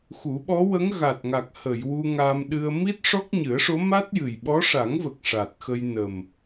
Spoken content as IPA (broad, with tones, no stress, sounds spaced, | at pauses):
x u˨˩˦ ɓ ɔ˧˥ w ə˧˥ ŋ ɣ a˨˩ t̚ ŋ a˨˩ k̚ h ə˨˩˨ j w u˧ ŋ aː˧ m ɗ ɨ˧ ə̯ m i˦˥ t̚ ʂ ɔ˦˥ k̚ ɲ ɨ˨˩˦ ə̯ ʂ o˧˥ m a˦˥ t̚ j ɨ˨˩ j ɓ ɔ˧˥ ʂ a˨˩˦ ŋ v ə˨˩ k̚ ʂ a˨˩ t̚ x ə˧ j n ə˨˩ m